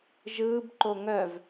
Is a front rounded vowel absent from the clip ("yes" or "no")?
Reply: no